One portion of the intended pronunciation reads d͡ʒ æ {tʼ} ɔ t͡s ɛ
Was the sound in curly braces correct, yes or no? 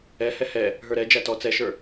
no